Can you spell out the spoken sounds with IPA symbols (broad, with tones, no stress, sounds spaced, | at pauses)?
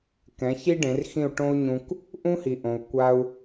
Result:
k ɛ̃˩˥ ç i˥ ɖ ẽ˩˥ r x ĩ˥˩ u̯ ʈ õ˥ u̯ ɲ ũ˧ k | ʔ ũ˥ h i˩ ʔ õ˩ u̯ kʷ a˧ u̯